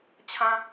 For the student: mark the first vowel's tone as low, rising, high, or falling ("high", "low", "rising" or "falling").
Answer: high